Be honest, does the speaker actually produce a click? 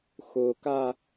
no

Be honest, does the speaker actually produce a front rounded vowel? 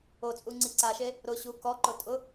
no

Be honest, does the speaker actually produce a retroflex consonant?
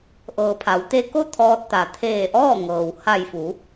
no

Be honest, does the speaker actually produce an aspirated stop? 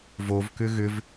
no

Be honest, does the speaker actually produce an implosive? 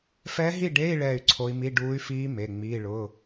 no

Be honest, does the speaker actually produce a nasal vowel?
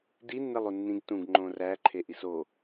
yes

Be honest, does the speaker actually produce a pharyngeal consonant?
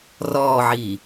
yes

